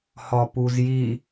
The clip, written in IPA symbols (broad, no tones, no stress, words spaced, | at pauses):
hɒpuzji